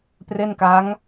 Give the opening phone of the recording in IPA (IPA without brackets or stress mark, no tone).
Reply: p